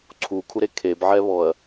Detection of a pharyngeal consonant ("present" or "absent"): present